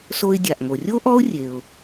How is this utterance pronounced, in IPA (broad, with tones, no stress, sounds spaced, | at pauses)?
s o˧ ɪ̯ dʲ a˩ ʔ ŋ o˩ rʲ o˥ ʔ ɔ˥ ʊ̯ rʲ e˩ ʊ̯